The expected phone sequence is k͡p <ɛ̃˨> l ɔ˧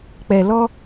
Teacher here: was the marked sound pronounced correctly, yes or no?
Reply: no